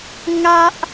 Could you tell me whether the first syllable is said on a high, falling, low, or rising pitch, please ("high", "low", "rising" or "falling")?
high